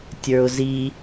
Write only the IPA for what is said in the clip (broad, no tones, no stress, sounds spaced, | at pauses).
tʲ ə˞ ʊ̯ z i